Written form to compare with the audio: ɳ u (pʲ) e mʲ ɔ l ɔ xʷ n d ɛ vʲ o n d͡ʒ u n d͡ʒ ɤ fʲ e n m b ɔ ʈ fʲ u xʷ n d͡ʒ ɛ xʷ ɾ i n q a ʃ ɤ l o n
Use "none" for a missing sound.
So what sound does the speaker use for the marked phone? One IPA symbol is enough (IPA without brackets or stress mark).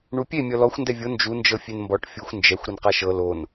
pʲ